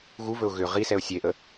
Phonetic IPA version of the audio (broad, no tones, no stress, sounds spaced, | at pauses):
ɣ u v ɵ ʊ̯ ɣ ʏ ʁ i s ɛ ʊ̯ sʲ e ʔ ə